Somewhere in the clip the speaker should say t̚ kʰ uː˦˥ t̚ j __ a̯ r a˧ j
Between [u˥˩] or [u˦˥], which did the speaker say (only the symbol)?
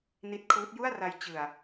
u˥˩